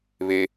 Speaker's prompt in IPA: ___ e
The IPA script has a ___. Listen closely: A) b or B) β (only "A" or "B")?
B